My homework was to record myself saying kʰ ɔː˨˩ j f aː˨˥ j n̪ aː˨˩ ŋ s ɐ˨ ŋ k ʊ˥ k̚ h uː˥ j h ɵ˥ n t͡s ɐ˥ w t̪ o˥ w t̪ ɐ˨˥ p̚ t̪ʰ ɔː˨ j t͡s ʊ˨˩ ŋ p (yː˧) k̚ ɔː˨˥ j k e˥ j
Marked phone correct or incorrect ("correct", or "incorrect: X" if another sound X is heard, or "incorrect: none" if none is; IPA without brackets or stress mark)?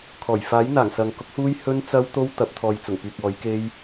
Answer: incorrect: yː˨